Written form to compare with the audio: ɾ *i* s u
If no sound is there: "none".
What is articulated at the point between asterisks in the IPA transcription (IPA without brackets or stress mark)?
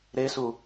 e